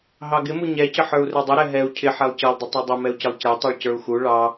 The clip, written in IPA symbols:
ɦ ɑ ɡ ɪ m u ɲ ɛ c ə ħ ə˞ u̯ r ɛ dˤ ʊ ɾ ɛ ɦ ɛ u̯ cʰ ɪ ħ ɛ lˠ c ʌ lˠ dˤ ɪ tˤ u dˤ ə m ɛ u̯ c ɪ lˠ c ɛ tˤ ə˞ ɭ c ə˞ u̯ x u ɭ ɑ

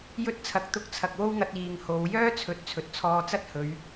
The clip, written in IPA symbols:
j ɵ˧ t̚ t͡sʰ ɐ˨ k̚ t̪ ʊ˧ k̚ t͡sʰ ɐ˨ k̚ w o˥ w ŋ ɐ˧ t̚ iː˨ ŋ h o˨˧ w j œː˥ t͡sʰ ɵ˨˥ t̚ t͡sʰ ɵ˨ t̚ t͡sʰ ɔː˧ t͡s ɐ˥ t̚ h ɵ˨˧ ɥ

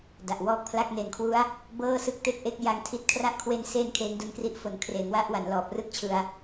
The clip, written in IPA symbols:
d a˨˩ ʔ w ɔː˦˥ k̚ pʰ l a˥˩ k̚ n e˨˩ n kʰ w u˦˥ a̯ | b ɤː˥˩ s ɯ˦˥ k̚ t e˥˩ k̚ ʔ e˥˩ k̚ j a˧ ŋ tʰ i˦˥ t̚ kʰ r a˥˩ ʔ kʰ w e˧ n s e˧ n kʰ eː˦˥ ŋ d u˧ n k r i˦˥ ʔ f o˨˩ n kʰ r eː˩˦ ŋ w a˦˥ ʔ w a˩˦ n l ɔː˨˩ p̚ r ɯ˦˥ k̚ t͡ɕʰ ɯ˧ a̯

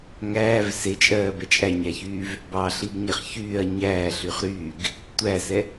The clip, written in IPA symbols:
ŋ æː v s e t͡ʃʼ ɜː b ɛ t͡ʃʼ æ ɲ æ ç yː v | b ɑ ɬ i ɡ ɲ ɛ χ ç yː ɐ̯ ɲ æː ɬ y χ ɾ yː ɡ | tʷ æ s ɛ

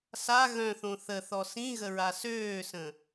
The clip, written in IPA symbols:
s a ɣ œ̃ θ õ θ ə θ ɔ s ĩ ɣ ə ɹ a s øː s ə̃

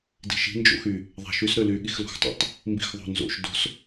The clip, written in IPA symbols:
d i̤ ʃ i̤ n d͡ʒ o̰ x y | ðˤ æ̤ ʃ y s ɾ ø l y ɠ i x l o̤ x tˤ o̰ tˤ | m b i̤ x ðˤ o̤ n z o̰ ʃ d o̤ s

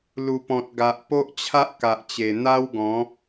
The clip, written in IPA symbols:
l u˨˩ p ɔ̃˨ t̚ ɡ a˨ ʔ p o˦ ʔ t͡ɕʰ a˦ ʔ k a˨ ʔ t͡ɕ e˨˩ n̪ a˦ w ɡ ɔ̃˨˦

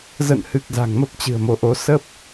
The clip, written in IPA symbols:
z ə̰˧˨ n h ɨ˨˩ k̚ z a̤˨˩ ŋ m ə˦˥ p̚ t͡ɕ ɨ̤˨˩ ə̯ m o˨˦ ʔ o˧ s ə˦˥ p̚

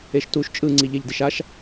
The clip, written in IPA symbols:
e ʃ t u ʃ t͡ʃʼ ɯ ŋ͡ǀ i ʎ e ʎ d i ʃ a ʃ

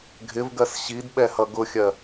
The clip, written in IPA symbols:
ɡʱ ɪ v ɡ ɜ s ɕ i d ɓ ɛ h ʌ ɡ ʊ xʲ ɜ

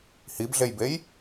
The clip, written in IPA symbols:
h i b ɮ e j b e j

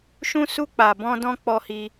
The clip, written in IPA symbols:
ʃ ũ˧ s u˧ k͡p a˨ b ɔ̃˧ d ɔ̃˧ k͡p ɔ˧ h i˧

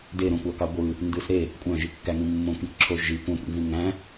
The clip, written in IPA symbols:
d e ɾ õ kʷ ɑ k ɑ ɡʷ ɯ | n d ɯ s ɾ e | kʷʼ æ̃ ʒ i kː æ ŋ ĩ mː õ k ĩ k ǁʰ o ʒ i kʷ æ̃ kʷ ḭ n z ĩ ŋ æ̃

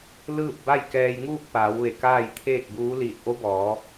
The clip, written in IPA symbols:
l ɯː˥˨ p̚ b a˥˨ j k ɛː˧ j ŋ uː˥˨ k̚ p aː˩˧ w ʋ e˧˩ k aː˥˨ j t̪ʰ eː˥˨ k̚ b uː˧˥ l iː˧˩ t̚ ʔ o˧˥ b ɔː˩˧

